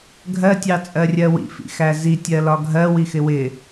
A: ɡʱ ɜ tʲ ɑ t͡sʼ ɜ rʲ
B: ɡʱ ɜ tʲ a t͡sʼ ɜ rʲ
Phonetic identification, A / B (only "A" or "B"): A